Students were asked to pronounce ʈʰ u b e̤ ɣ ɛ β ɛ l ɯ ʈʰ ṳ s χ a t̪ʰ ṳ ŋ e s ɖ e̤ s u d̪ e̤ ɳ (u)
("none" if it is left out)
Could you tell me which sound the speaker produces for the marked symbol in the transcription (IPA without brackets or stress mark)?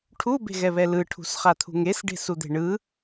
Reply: ɯ